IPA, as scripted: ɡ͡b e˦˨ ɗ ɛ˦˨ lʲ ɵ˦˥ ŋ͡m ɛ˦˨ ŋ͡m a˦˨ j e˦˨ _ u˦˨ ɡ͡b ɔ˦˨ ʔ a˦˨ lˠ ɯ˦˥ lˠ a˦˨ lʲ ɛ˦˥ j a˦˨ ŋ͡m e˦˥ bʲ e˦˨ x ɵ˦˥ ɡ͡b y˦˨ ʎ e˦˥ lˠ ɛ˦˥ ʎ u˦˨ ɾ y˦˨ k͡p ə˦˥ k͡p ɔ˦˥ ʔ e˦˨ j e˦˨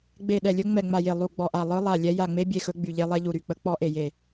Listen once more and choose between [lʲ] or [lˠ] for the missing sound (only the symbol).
lˠ